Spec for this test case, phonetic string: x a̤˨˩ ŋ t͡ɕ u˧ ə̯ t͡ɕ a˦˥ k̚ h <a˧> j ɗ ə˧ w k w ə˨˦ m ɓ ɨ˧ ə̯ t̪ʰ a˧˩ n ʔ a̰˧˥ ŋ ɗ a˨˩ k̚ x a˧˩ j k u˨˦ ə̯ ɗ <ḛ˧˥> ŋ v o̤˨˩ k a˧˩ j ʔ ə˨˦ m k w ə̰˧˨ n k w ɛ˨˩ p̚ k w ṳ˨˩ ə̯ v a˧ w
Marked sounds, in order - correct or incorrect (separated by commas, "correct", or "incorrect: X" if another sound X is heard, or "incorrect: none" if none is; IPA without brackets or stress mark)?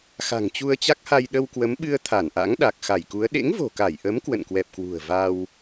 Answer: correct, correct